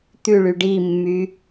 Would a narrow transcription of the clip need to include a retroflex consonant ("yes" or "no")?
yes